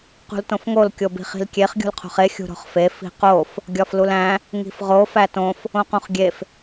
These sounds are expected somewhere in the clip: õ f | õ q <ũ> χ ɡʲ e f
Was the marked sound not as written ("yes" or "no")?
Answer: no